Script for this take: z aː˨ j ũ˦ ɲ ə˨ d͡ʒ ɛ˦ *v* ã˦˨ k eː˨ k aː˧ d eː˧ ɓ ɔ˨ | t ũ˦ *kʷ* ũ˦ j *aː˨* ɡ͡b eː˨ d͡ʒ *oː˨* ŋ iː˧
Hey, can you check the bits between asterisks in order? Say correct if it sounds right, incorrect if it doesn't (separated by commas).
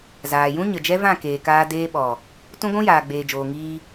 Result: correct, incorrect, correct, correct